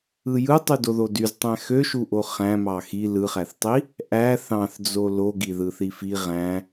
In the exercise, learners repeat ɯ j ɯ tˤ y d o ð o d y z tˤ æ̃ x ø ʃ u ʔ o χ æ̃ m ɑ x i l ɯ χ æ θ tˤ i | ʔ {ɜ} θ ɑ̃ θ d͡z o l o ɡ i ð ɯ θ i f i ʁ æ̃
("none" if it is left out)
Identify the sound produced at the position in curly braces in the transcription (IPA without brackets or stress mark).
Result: æ